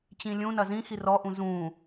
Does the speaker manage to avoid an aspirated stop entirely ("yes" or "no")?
yes